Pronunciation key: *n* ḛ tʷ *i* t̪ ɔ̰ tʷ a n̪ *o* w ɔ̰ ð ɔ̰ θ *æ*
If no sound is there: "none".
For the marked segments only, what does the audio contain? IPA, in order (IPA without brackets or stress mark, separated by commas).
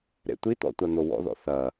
ɾ, i, o, ɐ